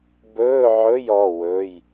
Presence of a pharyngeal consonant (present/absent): present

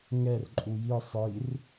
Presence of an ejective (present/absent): present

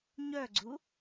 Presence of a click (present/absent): present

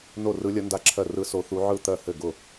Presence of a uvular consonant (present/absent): absent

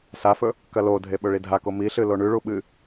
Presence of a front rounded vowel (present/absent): absent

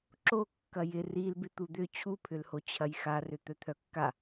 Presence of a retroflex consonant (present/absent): absent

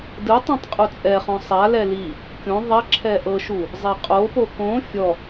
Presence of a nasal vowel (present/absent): present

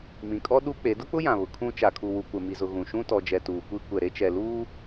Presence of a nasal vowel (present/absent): present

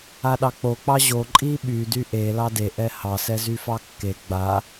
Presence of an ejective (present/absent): present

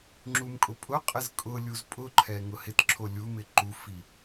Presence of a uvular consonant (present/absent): present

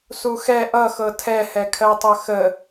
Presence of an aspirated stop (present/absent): present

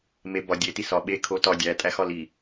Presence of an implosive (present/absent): present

